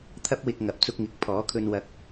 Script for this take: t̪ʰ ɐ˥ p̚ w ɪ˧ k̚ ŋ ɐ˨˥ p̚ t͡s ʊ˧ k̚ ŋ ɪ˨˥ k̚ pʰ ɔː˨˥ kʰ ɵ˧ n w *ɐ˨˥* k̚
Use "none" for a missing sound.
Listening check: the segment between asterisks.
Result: ɐ˨˥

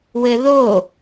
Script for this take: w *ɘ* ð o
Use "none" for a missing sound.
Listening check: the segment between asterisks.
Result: ɘ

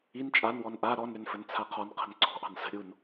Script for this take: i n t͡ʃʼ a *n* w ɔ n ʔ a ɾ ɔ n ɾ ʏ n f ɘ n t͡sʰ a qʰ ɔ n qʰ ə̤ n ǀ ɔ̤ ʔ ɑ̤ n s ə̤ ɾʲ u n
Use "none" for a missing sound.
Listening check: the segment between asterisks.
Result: n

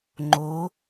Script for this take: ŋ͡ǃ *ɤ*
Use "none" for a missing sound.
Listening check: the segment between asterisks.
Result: o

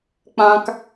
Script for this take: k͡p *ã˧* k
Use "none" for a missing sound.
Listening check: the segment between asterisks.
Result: ã˧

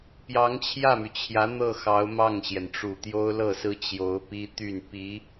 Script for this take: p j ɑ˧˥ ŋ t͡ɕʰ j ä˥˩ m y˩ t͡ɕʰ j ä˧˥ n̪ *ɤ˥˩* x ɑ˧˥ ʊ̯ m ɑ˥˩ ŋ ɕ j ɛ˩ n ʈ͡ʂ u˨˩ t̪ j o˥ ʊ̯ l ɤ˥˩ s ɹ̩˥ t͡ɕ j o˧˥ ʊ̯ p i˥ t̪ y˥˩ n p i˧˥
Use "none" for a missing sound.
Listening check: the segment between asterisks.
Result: ɤ˥˩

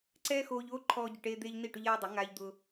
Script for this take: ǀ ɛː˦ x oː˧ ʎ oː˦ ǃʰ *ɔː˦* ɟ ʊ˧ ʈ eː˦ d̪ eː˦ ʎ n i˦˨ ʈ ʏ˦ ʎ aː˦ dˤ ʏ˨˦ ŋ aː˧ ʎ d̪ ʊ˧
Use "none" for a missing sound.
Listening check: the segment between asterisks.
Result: ɔː˦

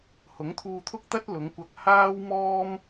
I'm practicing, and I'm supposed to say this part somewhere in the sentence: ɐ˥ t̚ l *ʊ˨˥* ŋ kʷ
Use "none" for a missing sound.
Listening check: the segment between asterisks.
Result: ʊ˨˧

